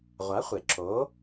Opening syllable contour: rising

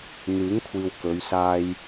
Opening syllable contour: rising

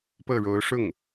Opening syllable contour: falling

